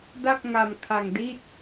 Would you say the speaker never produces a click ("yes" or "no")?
yes